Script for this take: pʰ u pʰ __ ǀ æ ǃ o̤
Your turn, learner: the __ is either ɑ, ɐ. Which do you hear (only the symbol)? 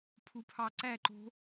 ɑ